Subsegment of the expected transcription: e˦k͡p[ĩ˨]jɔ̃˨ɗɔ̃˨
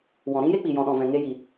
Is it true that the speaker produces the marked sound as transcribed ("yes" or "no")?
no